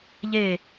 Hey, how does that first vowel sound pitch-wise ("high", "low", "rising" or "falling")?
falling